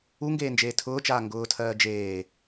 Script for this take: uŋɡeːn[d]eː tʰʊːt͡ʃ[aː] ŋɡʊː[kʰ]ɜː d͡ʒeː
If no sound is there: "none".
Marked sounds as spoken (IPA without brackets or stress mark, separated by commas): d͡ʒ, aː, tʰ